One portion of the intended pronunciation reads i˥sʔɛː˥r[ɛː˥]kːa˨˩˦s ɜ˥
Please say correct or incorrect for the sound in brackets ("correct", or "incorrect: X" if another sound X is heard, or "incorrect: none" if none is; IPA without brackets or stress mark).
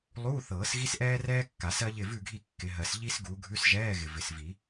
correct